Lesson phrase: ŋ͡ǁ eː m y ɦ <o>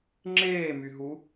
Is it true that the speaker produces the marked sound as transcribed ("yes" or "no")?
no